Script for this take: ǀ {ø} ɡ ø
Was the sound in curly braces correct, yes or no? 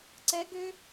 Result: no